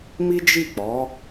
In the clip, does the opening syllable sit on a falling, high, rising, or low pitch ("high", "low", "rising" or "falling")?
high